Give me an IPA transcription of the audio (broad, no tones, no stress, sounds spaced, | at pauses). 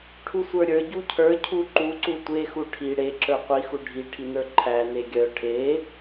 ʈʰ u sʷ ə˞ ɾʲ ə˞ ɟ u cʰ ə˞ cʰ u ǃ u ǀ u tʷ e x u ʈʰ i ɽ e ǁ ə˞ qʷ i x u ɖʱ i ʈʰ i n ə˞ ǃʰ æ n e ɡʲ œ ʈʰ e